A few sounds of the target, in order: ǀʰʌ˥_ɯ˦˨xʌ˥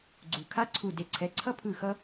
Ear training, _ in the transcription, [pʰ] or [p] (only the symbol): pʰ